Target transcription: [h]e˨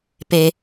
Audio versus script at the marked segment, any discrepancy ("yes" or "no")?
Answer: yes